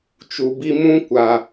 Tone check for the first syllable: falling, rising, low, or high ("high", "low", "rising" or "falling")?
low